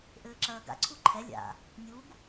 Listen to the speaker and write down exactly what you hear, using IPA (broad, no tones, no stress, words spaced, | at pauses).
ʔɘːǁɐːɡa̰ ǀʰuǃʰɛ lʲa̰ | nʲuɡ